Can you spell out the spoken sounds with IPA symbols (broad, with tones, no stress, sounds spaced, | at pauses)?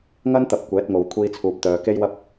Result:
ŋ ɐ˥ n t̪ ɐ˨˥ p̚ kʷ ɛː˨˥ t̚ ŋ o˨ w kʷʰ iː˧ t͡sʰ uː˨ p̚ t̪ œː˨ k e˥ j w ɐ˥ p̚